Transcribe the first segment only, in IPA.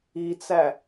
i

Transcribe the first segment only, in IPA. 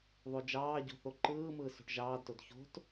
ðˤ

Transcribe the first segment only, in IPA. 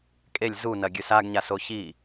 kʼ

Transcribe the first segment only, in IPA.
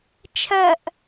t͡ʃʰ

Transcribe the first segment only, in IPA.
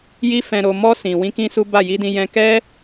j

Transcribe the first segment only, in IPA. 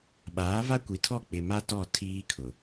ɓ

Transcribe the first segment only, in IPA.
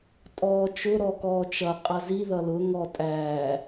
tʼ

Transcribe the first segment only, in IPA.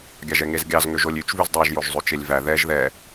ɡʲ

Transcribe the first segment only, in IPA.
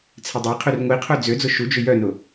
t͡sʰ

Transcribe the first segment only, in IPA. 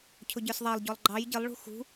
cʰ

